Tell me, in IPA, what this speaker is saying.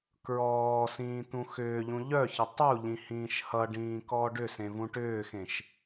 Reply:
kɹɔːsĩː t̪ũxʏːʎũ ʎœçə tˤuʎĩ hĩːʃhʌɖĩː kɔːɖʏsẽ vũʈʏːxẽʃ

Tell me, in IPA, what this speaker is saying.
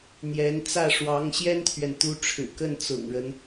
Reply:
n̪jɛ˧˥nt͡sä˥˩ ʂwɑ˧˥ŋɕjɛ˥nt̪ʰɥɛ˨n t̪u˧˥ʈ͡ʂʰɻ̩˨˩kə˥˩n t͡sʊ̰˨˩ŋɻə˦n

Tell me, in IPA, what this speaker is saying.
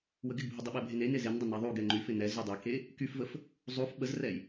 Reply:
wəɡɪɡbʱɪdˤɪ ɓɛbʱene nezen dˤəneðˤuɡ ɛŋ͡ǃyfɪ nɛz ydˤɛke | kyfvəf | zˤuf ɓəzrɛj

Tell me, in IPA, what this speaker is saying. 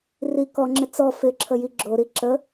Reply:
ri kɔŋ͡ǁɪ t͡sɔ fɪǁʰə jiɡ͡ǁoɾi ǁə

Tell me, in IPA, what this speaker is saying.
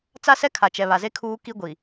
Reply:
t͡sa˦sɛ˦kʰa˨ t͡ʃɛ˨βa˨ze˦ kʰuː˦ki˦ɡʷi˨

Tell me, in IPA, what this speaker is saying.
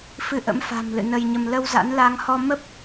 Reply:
fɨ˧ʔə̰˧˥mfa̤˨˩m lɨ̰˧˨nə˧jɲə˧m lə˧wza̰˧˥nla˨˦ŋhɔ˧ mə˦˥p̚

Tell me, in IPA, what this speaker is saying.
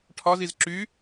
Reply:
ʈʰɒziz ǁy

